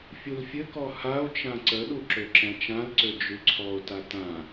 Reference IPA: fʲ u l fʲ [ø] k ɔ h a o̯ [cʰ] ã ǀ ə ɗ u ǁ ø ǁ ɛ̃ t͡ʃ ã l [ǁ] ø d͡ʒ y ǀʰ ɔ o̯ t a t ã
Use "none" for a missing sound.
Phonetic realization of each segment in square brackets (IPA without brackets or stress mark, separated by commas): ɘ, t͡ʃ, ǀ